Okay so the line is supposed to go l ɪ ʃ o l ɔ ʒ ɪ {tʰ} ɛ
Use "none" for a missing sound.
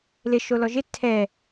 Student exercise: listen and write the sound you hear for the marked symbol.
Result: tʰ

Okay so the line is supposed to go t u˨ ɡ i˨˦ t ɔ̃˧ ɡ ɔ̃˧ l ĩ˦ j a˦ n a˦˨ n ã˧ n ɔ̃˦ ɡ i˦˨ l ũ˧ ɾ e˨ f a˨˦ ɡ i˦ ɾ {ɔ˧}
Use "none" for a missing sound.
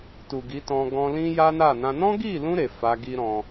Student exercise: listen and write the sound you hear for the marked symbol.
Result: ɔ̃˧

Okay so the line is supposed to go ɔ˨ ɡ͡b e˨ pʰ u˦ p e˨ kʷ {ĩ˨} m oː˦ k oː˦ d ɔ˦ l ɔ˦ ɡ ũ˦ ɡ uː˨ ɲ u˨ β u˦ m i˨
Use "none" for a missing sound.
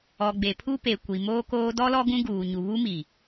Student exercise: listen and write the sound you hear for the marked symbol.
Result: i˨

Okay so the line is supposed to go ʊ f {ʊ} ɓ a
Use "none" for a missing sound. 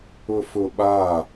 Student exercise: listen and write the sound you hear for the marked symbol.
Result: ʊ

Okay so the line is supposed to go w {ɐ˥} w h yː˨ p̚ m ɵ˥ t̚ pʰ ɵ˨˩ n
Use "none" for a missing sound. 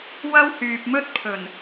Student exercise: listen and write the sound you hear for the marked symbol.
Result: ɐ˥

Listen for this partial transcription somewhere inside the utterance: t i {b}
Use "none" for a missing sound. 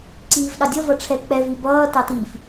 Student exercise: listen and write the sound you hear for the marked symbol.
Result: f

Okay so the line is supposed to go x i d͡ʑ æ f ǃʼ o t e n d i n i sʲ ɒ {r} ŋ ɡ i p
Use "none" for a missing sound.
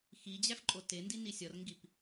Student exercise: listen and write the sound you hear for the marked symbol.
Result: r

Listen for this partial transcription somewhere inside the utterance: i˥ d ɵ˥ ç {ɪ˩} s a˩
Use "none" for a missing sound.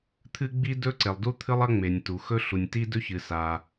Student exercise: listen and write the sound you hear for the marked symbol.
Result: ɨ˩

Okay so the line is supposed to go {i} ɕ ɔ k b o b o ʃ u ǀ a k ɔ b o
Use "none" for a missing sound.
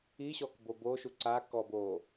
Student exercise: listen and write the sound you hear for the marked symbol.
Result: i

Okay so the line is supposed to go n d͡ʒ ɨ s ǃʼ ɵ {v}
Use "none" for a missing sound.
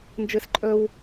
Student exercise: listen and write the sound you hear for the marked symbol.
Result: w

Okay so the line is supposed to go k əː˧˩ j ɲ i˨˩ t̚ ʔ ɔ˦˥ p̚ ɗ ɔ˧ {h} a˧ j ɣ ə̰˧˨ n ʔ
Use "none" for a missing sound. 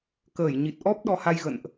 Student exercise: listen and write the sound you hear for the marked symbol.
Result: h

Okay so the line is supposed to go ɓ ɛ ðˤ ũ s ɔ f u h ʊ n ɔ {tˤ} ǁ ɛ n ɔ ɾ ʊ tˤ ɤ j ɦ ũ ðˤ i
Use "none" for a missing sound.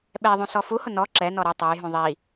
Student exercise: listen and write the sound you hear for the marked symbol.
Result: none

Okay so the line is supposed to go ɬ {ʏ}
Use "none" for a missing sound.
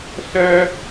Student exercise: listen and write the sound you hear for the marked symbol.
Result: ɛ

